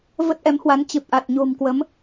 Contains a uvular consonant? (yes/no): no